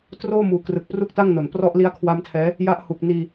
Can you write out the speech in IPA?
t r oː˥˩ m uː˨˩ k r ɯ˨˩ k̚ p r u˥˩ k̚ t a˥˩ ŋ n o˨˩ n p r ɔ˦˥ ʔ l i˦˥ a̯ kʰ w a˦˥ m tʰ ɛː˦˥ | j a˦˥ ʔ h u˨˩ k̚ n iː˧

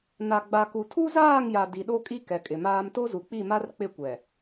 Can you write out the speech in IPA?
n a˨ ɡ͡b a˨ k u˨ tʰ u˦ z aː˦˨ ŋ j a˨ d i˨ ɗ o˦ kʼ i˦ k ɛ˨ kʼ ɪ˨ m aː˦ m t o˦ z u˨ k͡p i˦˨ m a˦ r k͡p ɪ˦˨ kʷ ɛ˨

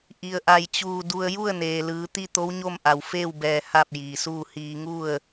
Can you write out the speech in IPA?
ʔ i˩ ə̯ ʔ a˧˩ j t͡ɕ uː˧˩ d u˧ ə̯ j u˥˨ ə̯ n eː˩ l ɯː˩˧ t̪ i˥˨ t̪ o˧˥ w ɲ o˥˨ m ʔ a˩ w f eː˥˨ w b ɛː˧ h a˥˨ p̚ j iː˩ s uː˥˨ h iː˧ ŋ u˥˨ ə̯

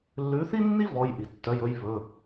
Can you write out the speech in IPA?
lː ʉ˨˥ θ i˥ nː i˥ v ɔ˧˥˧ j ʔ i˨ tː œ˧˥˧ j ɵ˥ j β ɵ˧˥˧

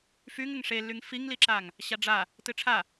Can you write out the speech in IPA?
f y ŋ ɘ ŋ ʂ e lː y ŋ f i ŋ l i ǁ a ŋ | ɕ a ɖ͡ʐ a | t ɨ ʈ͡ʂʰ a

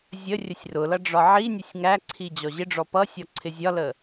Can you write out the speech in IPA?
zʲ ə rʲ ə sʲ r ʊ l ʌ ɖ͡ʐ ɒ ʕ i nʲ ʊ sʲ ŋ æ ǀʰ i d͡ʑ ɔ ʑ ɪ ɖ͡ʐ ɔ p ʌ sʲ ɔ ǀʰ ɪ zʲ ɒ l ə

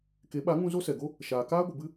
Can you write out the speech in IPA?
k e˨˦ ɓ a˨˦ ŋ ũ˧ z o˦ s ɛ˨ ɡ o˦ | ʃ aː˨ k aː˦ ɡʷ ə˨ b ɨ˦

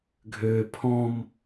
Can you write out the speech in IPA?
ɡʱ øː pʰ ɔ̃ m

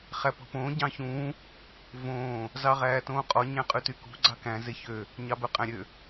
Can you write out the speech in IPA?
χ æ p ɔ̤ p õː ɟ ɑ̃ ç ũː | v õː | z ɑ ʁ æː t õː qʼ ɔ ɲ æ̃ qʼ ʉ t y k ṳ ɡ͡ǀ ɑ k æ̃ z e ç ø | ɲ ɑ b œ qʼ æ̃ ɾʲ ø

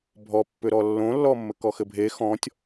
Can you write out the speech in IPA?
bʱ ɔ pː ʏ ɾ ɔ lː õ lː ɔ mː ɘ k ɔ x ɘ bʱ e x ɔ̃ tʲ

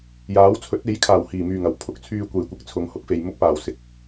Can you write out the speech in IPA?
j aː˨˥ w t͡sʰ ɵ˨˥ t̚ e˨˥ j kʰ aː˨˩ w h iː˨˩ m yː˨˩ ŋ ɐ˨˩ w pʰ ʊ˨˥ k̚ t͡sʰ yː˧ kʷ e˨˩ j kʷ ɪ˨˥ k̚ t͡sʰ ʊ˨˧ ŋ h ʊ˨˥ k̚ f e˨ j m ʊ˧ k̚ p aː˨˩ w s ɪ˨ k̚

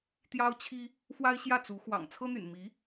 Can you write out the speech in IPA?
t̪ j ɑ˥ ʊ̯ t͡ɕʰ i˥ | f w a˥ ɪ̯ ɕ j ä˥˩ t͡s u˧˥ x w ɑ̰˨˩ ŋ t͡sʰ ɤ˥ n̪ y̰˨˩ n m i˧˥

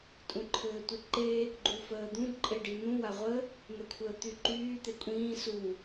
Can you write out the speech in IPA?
tʼ ũ ǃʰ ɘː tʷ i ǃ e | ɡ͡ǃ u f əː d̪ ũ ǃʼ e ɖ i n̪ ũ w a ʁʷ ə | n̪ ɛ kʷʰ əː t̪ y ǃ yː t̪ e kʷʼ ĩː s u

